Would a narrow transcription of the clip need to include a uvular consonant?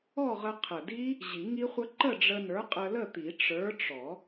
yes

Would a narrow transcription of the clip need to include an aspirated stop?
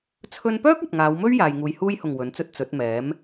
yes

